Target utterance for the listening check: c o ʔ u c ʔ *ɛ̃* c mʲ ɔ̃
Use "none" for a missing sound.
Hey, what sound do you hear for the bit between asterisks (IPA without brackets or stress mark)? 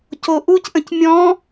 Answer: ə̃